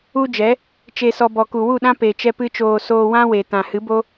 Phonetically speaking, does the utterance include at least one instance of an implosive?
yes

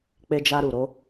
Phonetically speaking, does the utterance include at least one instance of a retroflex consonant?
no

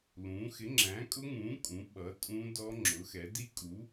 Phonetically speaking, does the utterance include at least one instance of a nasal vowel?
yes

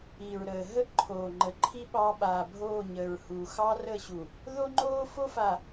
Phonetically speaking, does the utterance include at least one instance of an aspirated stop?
yes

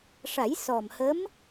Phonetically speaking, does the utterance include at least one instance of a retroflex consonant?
yes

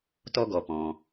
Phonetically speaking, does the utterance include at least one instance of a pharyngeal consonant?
no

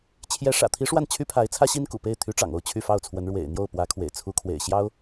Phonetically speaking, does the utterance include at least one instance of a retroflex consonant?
yes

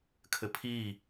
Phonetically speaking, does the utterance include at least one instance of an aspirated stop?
yes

